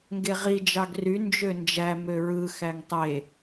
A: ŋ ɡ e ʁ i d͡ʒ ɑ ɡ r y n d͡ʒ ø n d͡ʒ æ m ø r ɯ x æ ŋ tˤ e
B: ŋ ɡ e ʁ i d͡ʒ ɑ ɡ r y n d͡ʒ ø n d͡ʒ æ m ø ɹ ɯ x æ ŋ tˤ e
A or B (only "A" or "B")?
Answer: B